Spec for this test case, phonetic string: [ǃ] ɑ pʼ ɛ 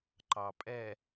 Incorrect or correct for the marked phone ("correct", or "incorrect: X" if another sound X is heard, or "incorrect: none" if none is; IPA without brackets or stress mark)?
correct